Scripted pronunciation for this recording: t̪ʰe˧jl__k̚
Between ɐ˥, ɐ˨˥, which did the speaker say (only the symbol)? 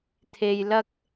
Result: ɐ˥